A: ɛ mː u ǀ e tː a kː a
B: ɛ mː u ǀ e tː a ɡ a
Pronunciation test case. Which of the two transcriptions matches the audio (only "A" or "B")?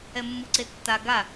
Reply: B